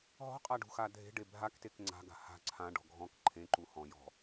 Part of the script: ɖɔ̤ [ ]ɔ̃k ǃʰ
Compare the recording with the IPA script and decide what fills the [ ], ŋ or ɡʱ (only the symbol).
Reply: ɡʱ